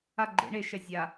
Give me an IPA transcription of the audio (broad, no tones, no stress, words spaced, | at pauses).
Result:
a ɡ͡ǃḛ ɳe ʃɛzʲa